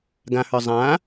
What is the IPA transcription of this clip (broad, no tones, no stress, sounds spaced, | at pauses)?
ɡ ã h ə˞ zˤ ã